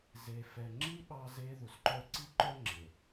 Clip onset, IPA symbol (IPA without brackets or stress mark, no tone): z